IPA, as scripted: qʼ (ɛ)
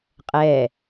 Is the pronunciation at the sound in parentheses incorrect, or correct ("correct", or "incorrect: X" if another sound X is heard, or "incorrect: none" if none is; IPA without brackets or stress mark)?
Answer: correct